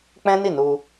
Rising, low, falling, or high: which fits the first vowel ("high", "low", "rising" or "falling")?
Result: high